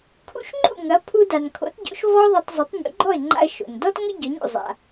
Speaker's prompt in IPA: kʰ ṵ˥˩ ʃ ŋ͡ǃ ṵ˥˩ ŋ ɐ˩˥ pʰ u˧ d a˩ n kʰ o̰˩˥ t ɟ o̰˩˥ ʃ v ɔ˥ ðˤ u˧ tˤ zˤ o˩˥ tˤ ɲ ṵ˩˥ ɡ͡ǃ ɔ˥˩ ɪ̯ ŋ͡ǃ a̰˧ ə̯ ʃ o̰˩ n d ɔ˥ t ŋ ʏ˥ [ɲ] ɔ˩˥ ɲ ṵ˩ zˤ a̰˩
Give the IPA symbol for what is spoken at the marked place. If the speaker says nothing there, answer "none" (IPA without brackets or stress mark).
ɟ